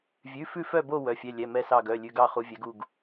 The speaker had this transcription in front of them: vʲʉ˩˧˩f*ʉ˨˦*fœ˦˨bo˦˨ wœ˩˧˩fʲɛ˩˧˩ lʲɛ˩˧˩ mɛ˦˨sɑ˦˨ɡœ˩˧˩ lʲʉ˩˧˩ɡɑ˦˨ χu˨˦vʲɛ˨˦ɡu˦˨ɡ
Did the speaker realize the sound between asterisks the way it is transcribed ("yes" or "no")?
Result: no